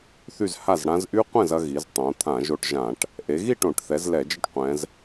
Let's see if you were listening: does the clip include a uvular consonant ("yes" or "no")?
yes